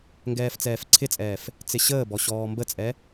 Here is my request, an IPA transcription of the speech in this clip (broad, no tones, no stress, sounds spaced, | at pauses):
ŋ ɡ ɛː f t͡s ɛː f ǀʰ ɪ t͡sʼ ɛː f | t͡s ɪ ɕ əː b ɔ ɕ ɔː m b ə t͡sʼ ɛ